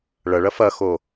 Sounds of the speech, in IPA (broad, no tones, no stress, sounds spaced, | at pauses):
ɭ ɐ ɭ ɐ f ɐ x o